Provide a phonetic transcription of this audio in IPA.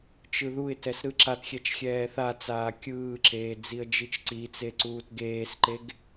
t͡ʃ ɯ ð u ɪ̯ t ɛ s ɾ ɯ ǁ a t xʲ ɛ t͡ʃ xʲ ɛː θ a t͡s aː kʲ ɯː ǁ eː d͡z i ə̯ d͡ʒ i t͡ʃ ǀ i t͡s e ǀ uː t ɡ eː s ǃ e ɡ

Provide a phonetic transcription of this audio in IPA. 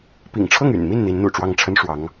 p ḭ˨˩ ŋ ʈ͡ʂʰ ɤ˥˩ ŋ y̰˨˩ n m i˥˩ n n̪ i˧˥ n n̪ ṵ˨˩ ʈ͡ʂ w ɑ˥˩ ŋ ʈ͡ʂʰ ə˥ n ʂ w ɑ˧˥ ŋ

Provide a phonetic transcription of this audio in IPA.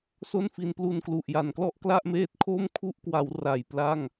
s o˥˩ n f i˧ n p l u˧ n k l u˨˩ ʔ j a˩˦ n k l ɔ˥˩ ʔ k l a˥˩ ʔ m eː˦˥ t̚ kʰ o˥˩ m kʰ u˥˩ ʔ k w a˩˦ w r a˨˩ j p l a˥˩ ŋ

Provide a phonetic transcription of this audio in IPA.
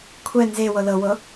kʷʰ ɛ n z e w ɤ l ɤ w ɤ

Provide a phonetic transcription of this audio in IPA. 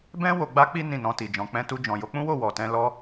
b ɛ̃˦ w o˧ ɡ͡b a˦ k͡p i˦ n ĩ˦˨ n ɔ̃˧ t i˨ d͡ʒ ɔ̃˨˦ k͡p ɛ̃˧ t u˧ d͡ʒ ɔ̃˨ j o˨˦ k͡p ũ˦ w o˦˨ w ɔ˨ t ɛ̃˧ l ɔ˦

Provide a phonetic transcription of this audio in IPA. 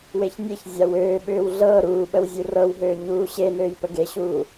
w e ç nʲ e ç zʲ a w øː ɓ ʏː w ɮ ɤː ɾ uː ɓ ə w zʲ u r ɤ w ɦ øː ɲ uː ɕ e n øː j p ə ɡ e ɕ uː

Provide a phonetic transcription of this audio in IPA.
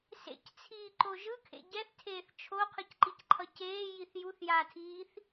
s ḛ c t͡sʰ iː ǃ o ʒ ɯ kʰ ḛ ɟ ɛ θ tʰ eː θ t͡ʃʰ o qʰ ɯ c ǃ i c ǃʰ ʌ c eː j i θ j u θ j aː tʰ iː θ

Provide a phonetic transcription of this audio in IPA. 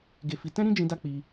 ɡ e˧ f i˧ t ɛ̃˦ ɾ ĩ˦ d͡ʒ ĩ˧ d a˦ k͡p i˧

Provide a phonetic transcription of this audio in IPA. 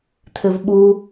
t̪ʰ ɪ v ɓ u

